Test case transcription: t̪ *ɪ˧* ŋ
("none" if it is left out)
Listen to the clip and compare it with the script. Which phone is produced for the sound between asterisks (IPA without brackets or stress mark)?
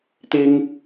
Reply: ɪ˥